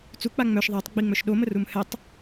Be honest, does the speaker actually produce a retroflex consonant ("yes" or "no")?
no